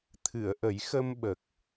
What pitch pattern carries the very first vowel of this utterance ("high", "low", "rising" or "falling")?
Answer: low